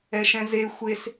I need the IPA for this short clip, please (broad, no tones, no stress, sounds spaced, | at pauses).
ɛ ʃ ɛ̃ z e xʷ e s